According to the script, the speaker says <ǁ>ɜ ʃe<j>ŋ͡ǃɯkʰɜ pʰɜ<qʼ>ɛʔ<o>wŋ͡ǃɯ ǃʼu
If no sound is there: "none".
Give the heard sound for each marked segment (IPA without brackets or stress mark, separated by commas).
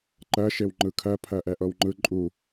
ǃ, w, ʔ, ɤ